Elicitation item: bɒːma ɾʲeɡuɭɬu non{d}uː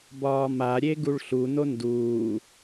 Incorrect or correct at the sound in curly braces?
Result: correct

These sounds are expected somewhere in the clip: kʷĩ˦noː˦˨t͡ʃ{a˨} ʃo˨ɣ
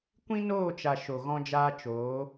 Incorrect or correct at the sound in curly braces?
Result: correct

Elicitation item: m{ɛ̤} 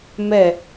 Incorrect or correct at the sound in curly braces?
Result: incorrect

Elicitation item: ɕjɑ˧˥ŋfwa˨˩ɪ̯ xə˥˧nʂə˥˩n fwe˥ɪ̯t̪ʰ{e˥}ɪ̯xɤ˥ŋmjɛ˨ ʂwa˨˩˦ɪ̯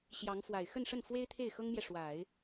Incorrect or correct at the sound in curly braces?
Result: incorrect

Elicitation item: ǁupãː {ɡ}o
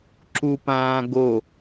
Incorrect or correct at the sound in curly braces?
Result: correct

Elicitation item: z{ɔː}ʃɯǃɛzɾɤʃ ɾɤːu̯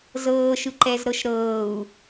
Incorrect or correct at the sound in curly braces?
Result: incorrect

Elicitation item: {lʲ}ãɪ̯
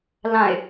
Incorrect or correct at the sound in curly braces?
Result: incorrect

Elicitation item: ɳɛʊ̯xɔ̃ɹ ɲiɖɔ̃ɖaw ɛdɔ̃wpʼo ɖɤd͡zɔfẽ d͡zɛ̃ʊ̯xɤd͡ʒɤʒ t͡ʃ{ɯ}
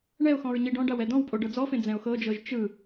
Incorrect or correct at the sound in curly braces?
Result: correct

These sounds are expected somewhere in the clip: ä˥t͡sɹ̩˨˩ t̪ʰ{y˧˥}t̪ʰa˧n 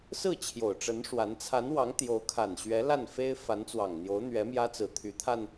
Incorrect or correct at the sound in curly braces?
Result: correct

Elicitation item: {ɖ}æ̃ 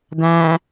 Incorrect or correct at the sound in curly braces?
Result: incorrect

